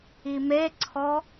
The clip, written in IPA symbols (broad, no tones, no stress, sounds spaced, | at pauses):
i m e ǀʰ ɔ